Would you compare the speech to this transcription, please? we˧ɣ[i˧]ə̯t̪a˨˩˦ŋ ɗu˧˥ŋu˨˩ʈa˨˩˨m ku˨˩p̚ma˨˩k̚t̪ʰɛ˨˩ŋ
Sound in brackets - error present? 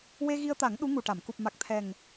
no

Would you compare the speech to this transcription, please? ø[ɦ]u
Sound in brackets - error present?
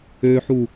yes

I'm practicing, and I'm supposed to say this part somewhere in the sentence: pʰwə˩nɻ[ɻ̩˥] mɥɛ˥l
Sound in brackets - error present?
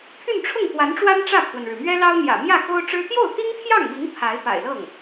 yes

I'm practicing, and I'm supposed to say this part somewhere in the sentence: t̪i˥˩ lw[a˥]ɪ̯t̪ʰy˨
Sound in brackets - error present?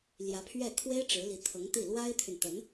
no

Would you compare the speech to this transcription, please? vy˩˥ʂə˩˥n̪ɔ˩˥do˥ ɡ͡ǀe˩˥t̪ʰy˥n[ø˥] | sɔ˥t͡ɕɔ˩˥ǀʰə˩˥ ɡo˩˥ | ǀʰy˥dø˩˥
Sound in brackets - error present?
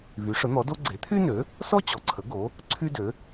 yes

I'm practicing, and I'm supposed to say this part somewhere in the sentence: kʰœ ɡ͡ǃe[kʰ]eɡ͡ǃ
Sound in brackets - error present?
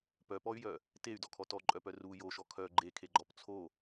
no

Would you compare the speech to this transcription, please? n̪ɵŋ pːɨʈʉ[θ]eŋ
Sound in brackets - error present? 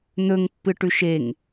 yes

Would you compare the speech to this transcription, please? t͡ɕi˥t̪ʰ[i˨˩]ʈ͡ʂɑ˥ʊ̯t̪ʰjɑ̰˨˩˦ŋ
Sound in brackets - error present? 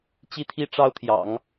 yes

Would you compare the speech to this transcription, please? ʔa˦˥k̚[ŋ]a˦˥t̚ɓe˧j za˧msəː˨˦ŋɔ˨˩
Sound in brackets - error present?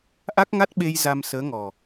no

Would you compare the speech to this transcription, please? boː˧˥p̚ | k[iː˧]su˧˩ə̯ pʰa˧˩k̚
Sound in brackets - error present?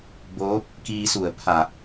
no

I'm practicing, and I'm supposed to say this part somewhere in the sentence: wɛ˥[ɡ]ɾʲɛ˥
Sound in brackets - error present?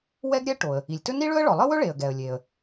no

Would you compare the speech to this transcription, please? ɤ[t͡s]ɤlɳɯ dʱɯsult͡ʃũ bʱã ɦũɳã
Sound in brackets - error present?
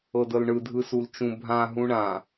yes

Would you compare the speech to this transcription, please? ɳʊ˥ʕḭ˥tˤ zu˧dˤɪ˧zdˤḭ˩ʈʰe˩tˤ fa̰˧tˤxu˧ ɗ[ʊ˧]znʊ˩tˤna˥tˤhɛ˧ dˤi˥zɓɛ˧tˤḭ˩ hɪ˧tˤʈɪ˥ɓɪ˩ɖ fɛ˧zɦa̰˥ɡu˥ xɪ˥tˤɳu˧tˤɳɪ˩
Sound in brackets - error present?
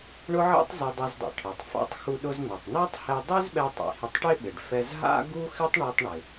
no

